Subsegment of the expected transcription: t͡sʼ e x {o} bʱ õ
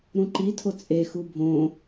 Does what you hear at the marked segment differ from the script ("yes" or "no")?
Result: yes